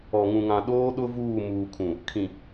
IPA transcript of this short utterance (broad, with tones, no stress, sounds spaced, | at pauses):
ɔ˨ ŋ ũ˨ ŋ ã˨ ɗ oː˦ ɗ ʊ˦ v uː˦˨ m uː˨ kʰ ũ˨ | kʰ ĩ˨